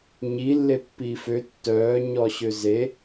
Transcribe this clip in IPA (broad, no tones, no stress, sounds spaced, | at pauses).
ɲ i lː e pː iː f ø tː œː ɲ ɔ ɕ ø z e